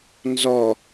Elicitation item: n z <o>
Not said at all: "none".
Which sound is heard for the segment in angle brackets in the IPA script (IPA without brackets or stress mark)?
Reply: ɔ